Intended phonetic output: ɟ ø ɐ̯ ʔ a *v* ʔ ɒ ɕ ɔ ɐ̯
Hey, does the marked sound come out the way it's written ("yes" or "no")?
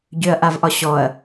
yes